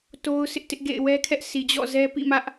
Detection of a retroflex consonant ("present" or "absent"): absent